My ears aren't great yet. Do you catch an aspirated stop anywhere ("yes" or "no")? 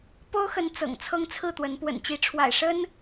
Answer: yes